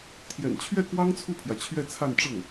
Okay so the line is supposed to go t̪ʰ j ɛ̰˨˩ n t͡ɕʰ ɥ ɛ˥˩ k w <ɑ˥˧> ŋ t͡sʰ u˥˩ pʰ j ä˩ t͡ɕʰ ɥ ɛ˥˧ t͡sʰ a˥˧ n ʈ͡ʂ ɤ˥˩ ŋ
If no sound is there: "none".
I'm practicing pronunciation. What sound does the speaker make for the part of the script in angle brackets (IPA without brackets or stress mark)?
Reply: ɑ˥